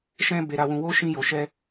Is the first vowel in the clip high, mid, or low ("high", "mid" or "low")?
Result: mid